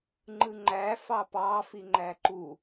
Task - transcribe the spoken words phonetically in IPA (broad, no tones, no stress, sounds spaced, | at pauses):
ŋ͡ǃ ɯ ŋ͡ǃ æ f ɑ p ɑ f i ŋ͡ǃ æ ǃ u